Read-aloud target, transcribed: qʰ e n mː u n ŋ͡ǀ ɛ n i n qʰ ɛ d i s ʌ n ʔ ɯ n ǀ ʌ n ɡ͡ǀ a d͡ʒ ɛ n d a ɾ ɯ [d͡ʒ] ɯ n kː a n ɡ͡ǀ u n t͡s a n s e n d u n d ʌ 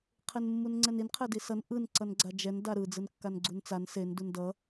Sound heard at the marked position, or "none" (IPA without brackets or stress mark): d͡z